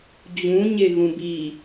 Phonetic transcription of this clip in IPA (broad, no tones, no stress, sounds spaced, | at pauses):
d͡ʑ ũ ɲ e ɣ ũ b i